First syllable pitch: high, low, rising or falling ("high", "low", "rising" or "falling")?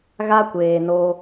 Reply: high